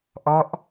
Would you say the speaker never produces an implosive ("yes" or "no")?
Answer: yes